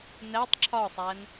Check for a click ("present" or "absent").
present